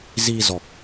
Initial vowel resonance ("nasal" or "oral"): oral